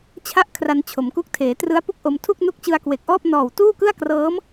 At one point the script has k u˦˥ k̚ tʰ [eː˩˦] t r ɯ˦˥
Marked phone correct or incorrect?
correct